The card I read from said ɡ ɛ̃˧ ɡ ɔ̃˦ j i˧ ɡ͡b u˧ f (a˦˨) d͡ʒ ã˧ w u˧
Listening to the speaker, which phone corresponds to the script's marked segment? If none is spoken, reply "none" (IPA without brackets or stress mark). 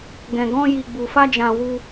a˦